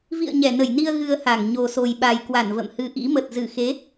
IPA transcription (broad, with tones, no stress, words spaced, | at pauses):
vḭ˧˨ə̯ ɲɛ˧˩nə˧˩jni˧ə̯ ɣɨ˧ə̯ha˧˩ŋ ɲo˨˩so˨˩jɓa˨˩jkwa˧˩n və̰˧˨mhɨ˧ʔḭ˧˥ mə˨˩t̚zɨ˧˩ xe˨˦